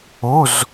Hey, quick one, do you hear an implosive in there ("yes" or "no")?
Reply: no